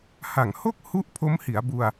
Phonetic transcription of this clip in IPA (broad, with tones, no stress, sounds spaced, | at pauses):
h a˨˩ ŋ h o˥˩ k̚ h u˥˩ ʔ pʰ o˦˥ m h i˩˦ a̯ b u˧ a̯